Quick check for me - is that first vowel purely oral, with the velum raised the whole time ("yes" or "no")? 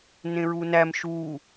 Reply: no